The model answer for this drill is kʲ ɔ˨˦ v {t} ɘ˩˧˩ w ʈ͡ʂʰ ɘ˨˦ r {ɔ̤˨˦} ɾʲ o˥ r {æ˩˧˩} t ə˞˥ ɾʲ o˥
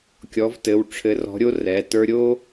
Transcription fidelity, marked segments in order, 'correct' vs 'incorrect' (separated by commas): correct, correct, incorrect